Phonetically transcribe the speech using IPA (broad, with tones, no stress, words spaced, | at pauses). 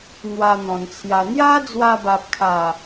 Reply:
n̪wa˧n̪ɔ̃˨˩nt͡sʰja˧ n̪ja˦d͡zwa˧ba˨p̚kʰa˨˩